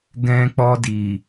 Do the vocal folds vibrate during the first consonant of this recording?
yes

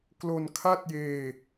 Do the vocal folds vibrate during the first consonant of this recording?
no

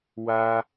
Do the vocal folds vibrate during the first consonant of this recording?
yes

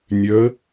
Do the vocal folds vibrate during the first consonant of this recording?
yes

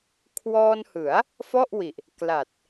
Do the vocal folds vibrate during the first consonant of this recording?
no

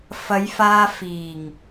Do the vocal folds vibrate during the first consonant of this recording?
no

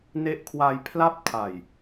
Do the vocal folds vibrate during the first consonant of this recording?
yes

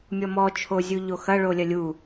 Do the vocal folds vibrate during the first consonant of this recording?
yes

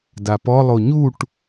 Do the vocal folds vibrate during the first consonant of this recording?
yes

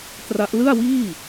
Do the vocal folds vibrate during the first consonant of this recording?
no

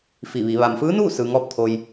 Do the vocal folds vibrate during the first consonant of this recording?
no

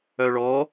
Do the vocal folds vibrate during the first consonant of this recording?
yes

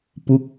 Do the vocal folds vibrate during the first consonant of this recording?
no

